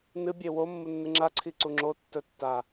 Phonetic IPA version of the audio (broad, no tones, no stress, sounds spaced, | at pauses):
n ɨ bʲ e w o mː u nː ɨ ŋ͡ǁ a ǀʰ i ǀ u ŋ͡ǁ o tː ɵ tː a